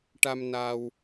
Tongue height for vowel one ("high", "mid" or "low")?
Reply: low